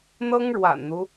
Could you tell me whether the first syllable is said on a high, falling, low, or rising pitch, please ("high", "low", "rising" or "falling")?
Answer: high